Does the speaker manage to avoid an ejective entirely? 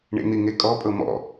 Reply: no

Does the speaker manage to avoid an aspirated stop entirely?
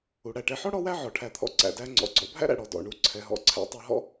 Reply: no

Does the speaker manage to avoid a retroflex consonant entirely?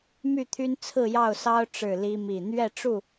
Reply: no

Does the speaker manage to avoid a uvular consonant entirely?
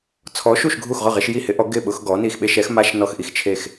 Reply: no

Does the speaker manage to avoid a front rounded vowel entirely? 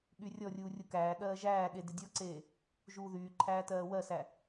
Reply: no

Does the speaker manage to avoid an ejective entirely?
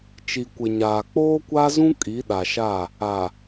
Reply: no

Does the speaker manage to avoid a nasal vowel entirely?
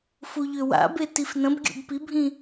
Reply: no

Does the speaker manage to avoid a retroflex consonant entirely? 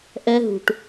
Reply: no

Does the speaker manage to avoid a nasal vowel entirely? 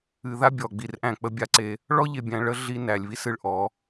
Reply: no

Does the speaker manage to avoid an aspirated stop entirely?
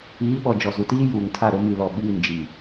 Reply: no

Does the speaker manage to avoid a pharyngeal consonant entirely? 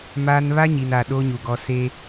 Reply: yes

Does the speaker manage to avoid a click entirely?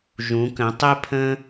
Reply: yes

